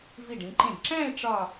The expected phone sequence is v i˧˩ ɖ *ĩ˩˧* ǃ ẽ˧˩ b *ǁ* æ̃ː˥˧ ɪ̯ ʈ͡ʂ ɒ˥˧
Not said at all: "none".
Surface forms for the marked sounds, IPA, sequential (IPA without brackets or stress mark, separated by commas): ĩ˩˧, ǁ